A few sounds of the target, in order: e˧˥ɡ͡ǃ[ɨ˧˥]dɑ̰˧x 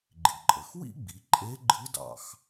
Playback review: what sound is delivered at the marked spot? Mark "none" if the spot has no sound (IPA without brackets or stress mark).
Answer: ɨ˧˥